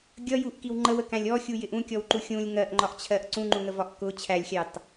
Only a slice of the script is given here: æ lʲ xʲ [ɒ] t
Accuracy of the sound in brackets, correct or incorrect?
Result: incorrect